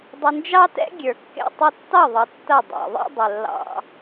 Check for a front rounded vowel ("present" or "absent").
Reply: absent